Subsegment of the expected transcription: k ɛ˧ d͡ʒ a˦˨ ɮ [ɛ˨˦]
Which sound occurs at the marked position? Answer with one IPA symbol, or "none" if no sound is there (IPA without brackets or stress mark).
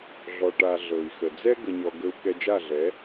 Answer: ɛ˨˦